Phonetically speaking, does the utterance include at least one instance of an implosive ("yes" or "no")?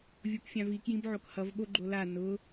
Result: yes